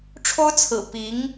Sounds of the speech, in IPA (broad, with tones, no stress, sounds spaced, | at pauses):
ʈ͡ʂʰ o˥ ʊ̯ t͡sʰ ɹ̩˨˩ p i˧˥ ŋ